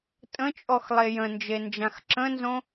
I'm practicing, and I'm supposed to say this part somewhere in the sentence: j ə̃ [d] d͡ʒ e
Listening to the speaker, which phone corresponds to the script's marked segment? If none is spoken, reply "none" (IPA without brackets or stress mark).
n